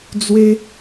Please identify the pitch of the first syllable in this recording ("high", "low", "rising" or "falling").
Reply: high